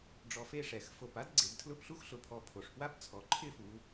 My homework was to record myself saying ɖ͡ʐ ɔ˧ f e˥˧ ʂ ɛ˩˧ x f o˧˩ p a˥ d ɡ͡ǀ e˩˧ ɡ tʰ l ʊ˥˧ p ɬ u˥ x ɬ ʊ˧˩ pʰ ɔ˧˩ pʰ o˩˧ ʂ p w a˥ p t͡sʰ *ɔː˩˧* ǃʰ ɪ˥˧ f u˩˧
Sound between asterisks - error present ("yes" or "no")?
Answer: yes